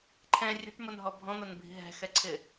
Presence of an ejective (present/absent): absent